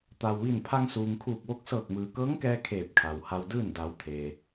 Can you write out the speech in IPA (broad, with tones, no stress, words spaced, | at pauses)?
t̪a˩wʋi˧˩n pʰa˧ŋsuː˩ŋkʰuː˧˩k̚ʋo˧˥k̚ sɤː˧˩k̚mɯː˩kɤː˧˥ŋkɛː˧ kʰeː˧˩p̚kʰa˩wha˧wdɯː˥˨n da˩˧w t̪ʰeː˩